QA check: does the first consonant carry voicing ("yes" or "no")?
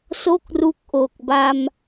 no